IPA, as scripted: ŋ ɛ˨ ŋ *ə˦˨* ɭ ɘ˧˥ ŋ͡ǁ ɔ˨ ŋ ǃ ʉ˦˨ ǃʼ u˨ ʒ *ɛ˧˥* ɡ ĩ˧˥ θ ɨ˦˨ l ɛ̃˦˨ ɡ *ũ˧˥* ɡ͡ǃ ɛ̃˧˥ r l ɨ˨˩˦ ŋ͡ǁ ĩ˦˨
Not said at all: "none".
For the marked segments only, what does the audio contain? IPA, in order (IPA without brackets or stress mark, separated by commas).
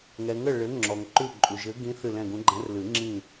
ə˦˨, ɘ˧˥, ũ˧˥